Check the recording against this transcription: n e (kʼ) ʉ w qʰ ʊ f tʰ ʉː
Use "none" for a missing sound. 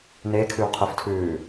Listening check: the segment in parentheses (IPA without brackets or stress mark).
kʰ